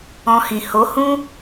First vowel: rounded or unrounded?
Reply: rounded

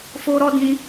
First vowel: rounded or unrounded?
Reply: rounded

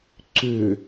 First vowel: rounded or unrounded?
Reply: rounded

